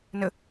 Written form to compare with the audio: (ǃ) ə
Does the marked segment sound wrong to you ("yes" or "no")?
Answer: yes